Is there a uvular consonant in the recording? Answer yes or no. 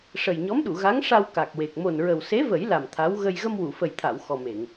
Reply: no